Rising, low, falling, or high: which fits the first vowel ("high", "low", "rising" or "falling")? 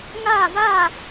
falling